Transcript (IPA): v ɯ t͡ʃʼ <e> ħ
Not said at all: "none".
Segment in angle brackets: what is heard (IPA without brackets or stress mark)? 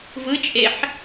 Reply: e